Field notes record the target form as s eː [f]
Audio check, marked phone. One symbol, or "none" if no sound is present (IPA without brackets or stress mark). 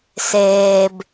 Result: b